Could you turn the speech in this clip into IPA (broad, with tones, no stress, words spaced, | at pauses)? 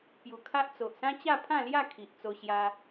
pju˨˩kʰa˦ʔt͡so˨ʔ sã˦t͡ɕa˥˧pʰã˥˧ lja˥˧ kʰi˨ʔ t͡so˧ɕja˧